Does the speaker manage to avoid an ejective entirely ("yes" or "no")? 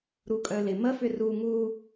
no